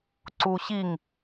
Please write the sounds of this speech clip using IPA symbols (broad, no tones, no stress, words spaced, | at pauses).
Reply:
ǀuɕiŋ